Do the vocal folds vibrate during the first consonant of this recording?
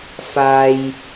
no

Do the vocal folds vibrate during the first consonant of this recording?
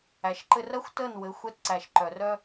no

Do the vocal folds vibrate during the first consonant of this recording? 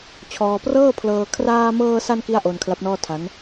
no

